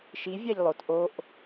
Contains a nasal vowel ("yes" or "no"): no